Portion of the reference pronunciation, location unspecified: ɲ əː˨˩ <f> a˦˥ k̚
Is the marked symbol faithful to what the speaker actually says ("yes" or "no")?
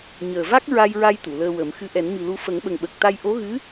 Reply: no